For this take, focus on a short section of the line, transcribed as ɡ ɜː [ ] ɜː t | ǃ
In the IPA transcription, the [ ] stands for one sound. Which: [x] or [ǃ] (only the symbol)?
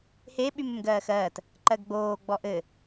x